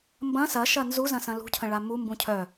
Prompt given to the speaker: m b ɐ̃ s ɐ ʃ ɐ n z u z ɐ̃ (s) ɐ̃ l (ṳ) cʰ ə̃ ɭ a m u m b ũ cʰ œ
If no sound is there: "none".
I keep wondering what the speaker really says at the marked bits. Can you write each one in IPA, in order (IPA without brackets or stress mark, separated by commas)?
s, ṳ